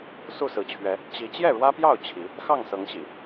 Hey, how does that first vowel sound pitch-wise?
falling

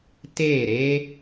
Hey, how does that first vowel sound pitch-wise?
falling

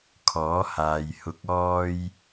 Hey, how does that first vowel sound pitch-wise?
rising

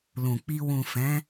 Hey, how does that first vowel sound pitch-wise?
low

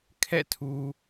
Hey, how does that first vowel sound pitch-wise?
falling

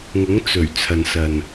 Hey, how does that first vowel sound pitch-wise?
rising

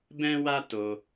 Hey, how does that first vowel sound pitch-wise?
high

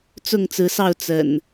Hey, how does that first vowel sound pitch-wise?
falling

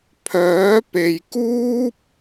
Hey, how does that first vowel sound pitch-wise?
rising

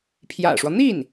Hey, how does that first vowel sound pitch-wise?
low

